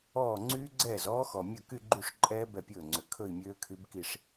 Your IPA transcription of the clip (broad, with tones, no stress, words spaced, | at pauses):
ɔː˥˩ ŋ͡ǀyː˦˥ɡ͡ǀɛː˥˩zɔː˦˥ xɔ˨˩mʲɵ˥˩ ky˥˧ɡ͡ǃy˥˩ʂǃʼɛː˦˥ bɛ˥˩pʲɵː˥˩ŋ͡ǀø˨˩ kʰɵ˥˧i̯mʲøː˦˥kʰy˦˥bki˥˧ʂ